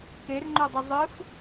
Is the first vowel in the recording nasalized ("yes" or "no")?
no